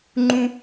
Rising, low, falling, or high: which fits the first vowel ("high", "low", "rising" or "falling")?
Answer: high